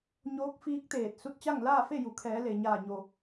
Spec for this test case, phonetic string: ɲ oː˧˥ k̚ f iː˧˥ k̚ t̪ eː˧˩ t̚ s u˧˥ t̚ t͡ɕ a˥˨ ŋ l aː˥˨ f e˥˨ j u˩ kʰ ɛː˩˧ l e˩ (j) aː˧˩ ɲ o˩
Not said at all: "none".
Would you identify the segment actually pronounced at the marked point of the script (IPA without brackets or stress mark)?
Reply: ɲ